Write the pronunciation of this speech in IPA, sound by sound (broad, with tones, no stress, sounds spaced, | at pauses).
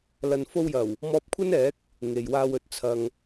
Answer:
l ɐ˨ n f o˧ w j ɐ˨˩ w | m ɔː˧ p̚ kʷʰ ɐ˥ n ɛː˨˥ k̚ | ŋ e˨ j w aː˧ w ɵ˨˥ t̚ t͡sʰ ɐ˨ ŋ